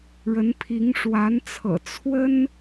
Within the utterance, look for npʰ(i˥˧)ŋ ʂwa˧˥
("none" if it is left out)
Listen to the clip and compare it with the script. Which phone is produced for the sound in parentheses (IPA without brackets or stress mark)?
i˧˥